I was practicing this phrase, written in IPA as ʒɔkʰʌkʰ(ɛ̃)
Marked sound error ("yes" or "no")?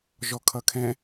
no